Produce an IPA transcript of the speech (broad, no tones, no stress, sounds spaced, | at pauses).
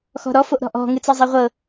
x ɔ̤ ɾ ɔ f o ʔ ɾ ɔ̤ ʔ ɔ̤ ŋ ɨ t͡s ɤ zˤ e ʁʷ ɤ